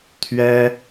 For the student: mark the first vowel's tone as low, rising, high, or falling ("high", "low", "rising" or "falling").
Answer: high